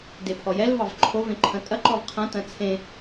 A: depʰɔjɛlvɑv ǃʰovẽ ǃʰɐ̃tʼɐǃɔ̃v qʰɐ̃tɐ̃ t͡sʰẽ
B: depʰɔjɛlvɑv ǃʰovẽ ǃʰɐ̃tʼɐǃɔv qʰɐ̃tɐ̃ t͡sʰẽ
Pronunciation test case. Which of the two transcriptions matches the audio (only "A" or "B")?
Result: B